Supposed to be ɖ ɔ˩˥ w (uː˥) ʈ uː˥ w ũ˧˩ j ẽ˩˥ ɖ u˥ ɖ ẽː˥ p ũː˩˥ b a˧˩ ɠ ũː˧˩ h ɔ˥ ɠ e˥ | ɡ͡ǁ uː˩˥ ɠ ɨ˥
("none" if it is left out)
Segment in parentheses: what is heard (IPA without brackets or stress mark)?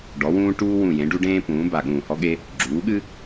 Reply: ũː˥